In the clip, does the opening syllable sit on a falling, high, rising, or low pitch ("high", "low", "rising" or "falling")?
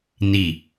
low